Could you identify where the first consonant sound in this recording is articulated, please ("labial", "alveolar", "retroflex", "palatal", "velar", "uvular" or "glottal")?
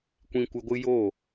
velar